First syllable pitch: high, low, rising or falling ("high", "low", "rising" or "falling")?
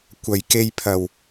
low